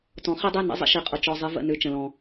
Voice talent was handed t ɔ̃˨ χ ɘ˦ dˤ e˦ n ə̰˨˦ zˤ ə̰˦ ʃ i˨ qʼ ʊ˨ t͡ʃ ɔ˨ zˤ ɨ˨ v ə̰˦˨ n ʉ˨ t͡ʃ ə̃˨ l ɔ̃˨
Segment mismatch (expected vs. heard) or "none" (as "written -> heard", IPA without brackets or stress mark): none